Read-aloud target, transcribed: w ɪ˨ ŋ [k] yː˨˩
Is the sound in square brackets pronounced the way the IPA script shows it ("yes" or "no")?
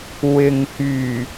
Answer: yes